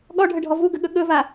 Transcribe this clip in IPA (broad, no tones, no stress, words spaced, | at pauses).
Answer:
ɠɔɖʱəɖʱɔ vuɡəɠɵ ɠɵva